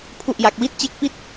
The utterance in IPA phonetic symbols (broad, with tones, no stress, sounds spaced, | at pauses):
pʰ u˥˩ ʔ j a˦˥ k̚ w i˥˩ t̚ t͡ɕ e˥˩ k̚ p i˥˩ t̚